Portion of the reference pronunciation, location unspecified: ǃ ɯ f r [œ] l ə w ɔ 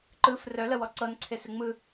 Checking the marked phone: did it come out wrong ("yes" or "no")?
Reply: no